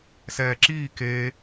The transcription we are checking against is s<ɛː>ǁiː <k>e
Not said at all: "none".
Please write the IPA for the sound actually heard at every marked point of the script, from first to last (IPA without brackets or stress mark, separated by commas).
ɛː, k